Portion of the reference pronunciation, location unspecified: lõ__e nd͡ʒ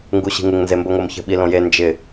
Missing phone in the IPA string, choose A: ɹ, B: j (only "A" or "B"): B